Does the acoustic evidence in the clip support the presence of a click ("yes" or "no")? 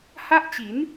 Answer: no